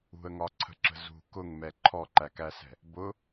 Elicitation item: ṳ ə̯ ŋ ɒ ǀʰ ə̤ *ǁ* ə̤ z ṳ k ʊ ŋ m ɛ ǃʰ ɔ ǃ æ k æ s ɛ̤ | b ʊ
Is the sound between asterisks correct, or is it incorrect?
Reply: correct